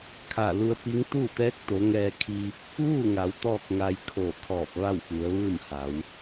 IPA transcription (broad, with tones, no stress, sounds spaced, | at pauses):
kʰ a˧˩ l u˧ ə̯ p i˧˥ ŋ t̪ uː˥˨ t̪ ɛː˧˥ k̚ t̪ o˩˧ ŋ ɛː˧ kʰ iː˧ p̚ | ʋ uː˥˨ ŋ a˩˧ w t̪ ɔː˥˨ k̚ ŋ a˧ j kʰ oː˧˩ kʰ ɔː˧˩ p̚ ʋ a˥˨ w f u˩˧ ə̯ ʋ ɯː˥˨ m h a˩˧ w